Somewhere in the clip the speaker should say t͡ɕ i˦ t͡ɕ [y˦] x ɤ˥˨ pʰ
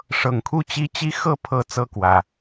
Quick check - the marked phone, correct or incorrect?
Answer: incorrect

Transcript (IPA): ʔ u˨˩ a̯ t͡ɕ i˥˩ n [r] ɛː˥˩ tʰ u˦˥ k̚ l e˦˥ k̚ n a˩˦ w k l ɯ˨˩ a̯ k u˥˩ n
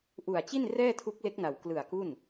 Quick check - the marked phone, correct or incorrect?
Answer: correct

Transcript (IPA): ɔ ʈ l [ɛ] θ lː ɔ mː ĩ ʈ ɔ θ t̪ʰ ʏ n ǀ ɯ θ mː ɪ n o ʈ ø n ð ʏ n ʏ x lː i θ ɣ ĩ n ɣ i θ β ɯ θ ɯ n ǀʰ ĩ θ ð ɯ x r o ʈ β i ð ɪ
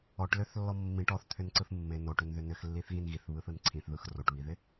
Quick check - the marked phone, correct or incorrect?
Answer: incorrect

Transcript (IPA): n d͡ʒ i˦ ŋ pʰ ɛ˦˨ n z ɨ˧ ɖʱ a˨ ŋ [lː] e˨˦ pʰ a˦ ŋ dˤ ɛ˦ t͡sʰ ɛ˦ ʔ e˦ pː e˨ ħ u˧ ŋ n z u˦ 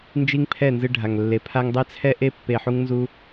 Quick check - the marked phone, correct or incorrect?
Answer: correct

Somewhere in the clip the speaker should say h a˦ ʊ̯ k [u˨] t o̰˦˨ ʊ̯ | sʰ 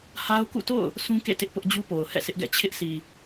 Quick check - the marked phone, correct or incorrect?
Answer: incorrect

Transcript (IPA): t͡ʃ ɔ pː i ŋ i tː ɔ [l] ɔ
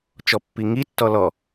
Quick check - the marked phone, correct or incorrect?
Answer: correct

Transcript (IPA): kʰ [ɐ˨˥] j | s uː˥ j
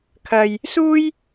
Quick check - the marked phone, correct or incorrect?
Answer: incorrect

